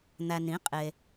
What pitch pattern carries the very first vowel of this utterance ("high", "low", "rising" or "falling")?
low